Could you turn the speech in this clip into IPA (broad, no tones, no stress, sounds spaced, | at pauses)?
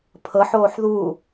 pʰ ɤ ħ oː ħ ð u